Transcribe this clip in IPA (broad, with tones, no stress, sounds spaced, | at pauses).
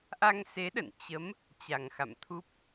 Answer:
ʔ a˧ ŋ s e˨˦ ɗ ə̰˧˨ n t͡ɕ ə˨˦ m | t͡ɕ a˨˩ ŋ x a̰˧˨ m t̪ʰ u˦˥ p̚